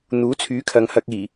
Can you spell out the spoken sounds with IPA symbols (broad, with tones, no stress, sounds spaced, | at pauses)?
n̪ uː˨˥ t͡sʰ yː˨˥ kʰ ɐ˨ ŋ h ɐ˧ k̚ iː˨˩